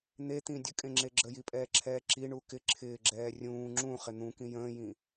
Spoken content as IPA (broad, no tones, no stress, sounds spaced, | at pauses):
n̪ e t̪ ĩ dʲ ə kʼ ẽ ŋ͡ǁ e ɡ͡ǁ ə j i pʼ ɛː ǁʰ ɛː ǁ i ɳ u k ɪ ǁʰ ɪː ɡ͡ǁ ɛː rʲ ũː ŋ͡ǁ ũ χ ɪ n̪ ũ k ĩ j ə̃ː j ĩ